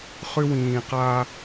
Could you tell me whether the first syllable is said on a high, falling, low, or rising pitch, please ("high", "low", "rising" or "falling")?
high